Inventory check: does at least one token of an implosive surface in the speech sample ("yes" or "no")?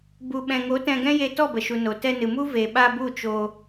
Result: yes